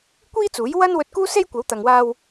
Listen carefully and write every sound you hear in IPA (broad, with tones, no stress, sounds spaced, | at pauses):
kʷ iː˥ t͡s uː˨˥ j w ɐ˥ n w ɵ˧ t̚ k uː˥ s e˥ j kʷ ɐ˨˥ w t̪ ɐ˨ ŋ w aː˧ w